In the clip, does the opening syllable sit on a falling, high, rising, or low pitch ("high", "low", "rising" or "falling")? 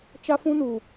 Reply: high